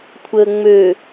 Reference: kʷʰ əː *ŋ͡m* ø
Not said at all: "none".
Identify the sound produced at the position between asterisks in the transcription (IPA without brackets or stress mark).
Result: ŋ͡m